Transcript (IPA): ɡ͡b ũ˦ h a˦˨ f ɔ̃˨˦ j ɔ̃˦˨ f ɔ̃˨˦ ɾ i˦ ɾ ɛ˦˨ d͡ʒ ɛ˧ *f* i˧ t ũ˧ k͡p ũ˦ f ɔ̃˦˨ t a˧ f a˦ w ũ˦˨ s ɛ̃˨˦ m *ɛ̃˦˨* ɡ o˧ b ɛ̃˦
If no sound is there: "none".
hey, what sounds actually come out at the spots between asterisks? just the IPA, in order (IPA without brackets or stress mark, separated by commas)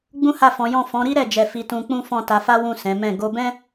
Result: f, ɛ̃˦˨